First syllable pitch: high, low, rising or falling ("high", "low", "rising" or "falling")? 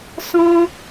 high